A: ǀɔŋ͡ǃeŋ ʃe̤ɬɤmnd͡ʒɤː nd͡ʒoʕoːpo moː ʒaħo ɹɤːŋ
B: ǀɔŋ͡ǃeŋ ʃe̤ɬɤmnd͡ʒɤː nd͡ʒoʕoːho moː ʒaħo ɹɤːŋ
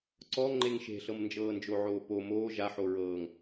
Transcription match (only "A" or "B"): A